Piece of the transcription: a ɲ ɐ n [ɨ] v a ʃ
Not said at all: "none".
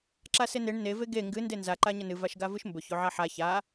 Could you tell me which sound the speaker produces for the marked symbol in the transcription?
ɨ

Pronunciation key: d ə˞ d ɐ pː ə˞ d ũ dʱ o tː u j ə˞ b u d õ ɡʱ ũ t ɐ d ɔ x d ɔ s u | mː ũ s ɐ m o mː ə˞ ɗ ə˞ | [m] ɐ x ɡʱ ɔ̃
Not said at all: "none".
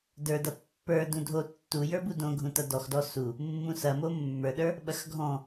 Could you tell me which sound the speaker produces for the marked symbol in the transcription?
ɓ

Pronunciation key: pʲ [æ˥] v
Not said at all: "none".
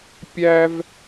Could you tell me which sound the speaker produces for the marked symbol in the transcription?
æ˥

